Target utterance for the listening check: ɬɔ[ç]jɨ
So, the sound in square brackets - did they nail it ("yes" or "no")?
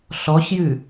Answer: yes